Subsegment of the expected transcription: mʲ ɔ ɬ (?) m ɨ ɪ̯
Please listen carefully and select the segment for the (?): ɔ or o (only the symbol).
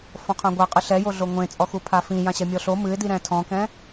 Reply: o